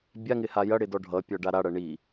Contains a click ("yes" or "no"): no